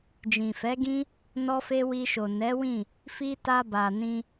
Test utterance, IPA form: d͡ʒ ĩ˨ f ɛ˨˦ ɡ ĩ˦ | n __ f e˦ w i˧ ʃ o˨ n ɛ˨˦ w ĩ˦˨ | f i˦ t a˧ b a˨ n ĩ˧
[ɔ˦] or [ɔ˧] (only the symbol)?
ɔ˦